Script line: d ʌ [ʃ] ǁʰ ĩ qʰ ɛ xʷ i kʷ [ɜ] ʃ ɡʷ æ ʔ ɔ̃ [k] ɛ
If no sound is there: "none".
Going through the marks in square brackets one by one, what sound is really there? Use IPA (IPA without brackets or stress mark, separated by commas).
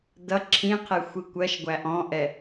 none, ɜ, ʔ